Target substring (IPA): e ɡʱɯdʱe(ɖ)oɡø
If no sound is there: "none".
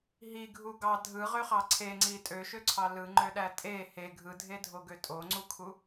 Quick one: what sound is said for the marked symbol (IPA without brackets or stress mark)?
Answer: dʱ